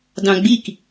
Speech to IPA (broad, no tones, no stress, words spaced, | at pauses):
dɑ̃ɡ͡bik